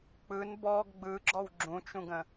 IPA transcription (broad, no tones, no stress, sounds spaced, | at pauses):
k͡p ɯ n b ɔ ɡ ɡ͡b ɯ ɡ͡ǁ ɔ w ɡ͡ǁ ũ t͡ʃ ũ ɡ ə̃